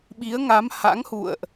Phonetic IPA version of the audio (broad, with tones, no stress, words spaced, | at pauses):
ɓi˨˦ə̯ŋa˨˦m ha̰˧˥ŋhṵ˧˨ə̯ʔ